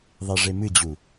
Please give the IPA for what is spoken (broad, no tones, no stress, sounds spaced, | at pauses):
ðˤ e ʐ e m ɨ d͡ʑ u